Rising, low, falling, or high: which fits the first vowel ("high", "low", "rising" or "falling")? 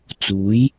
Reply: rising